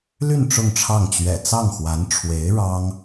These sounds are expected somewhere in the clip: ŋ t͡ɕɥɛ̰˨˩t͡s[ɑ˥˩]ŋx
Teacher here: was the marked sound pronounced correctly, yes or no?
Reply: yes